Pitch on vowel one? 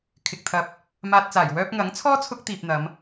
low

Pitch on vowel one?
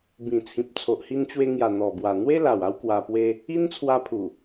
low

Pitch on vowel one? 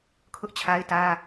high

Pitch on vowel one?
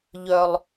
low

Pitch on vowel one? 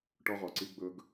high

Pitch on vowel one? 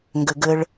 low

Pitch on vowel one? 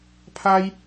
high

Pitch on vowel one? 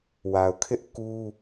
low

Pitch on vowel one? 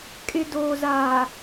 low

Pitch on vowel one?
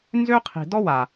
high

